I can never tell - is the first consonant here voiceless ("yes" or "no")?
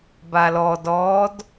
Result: no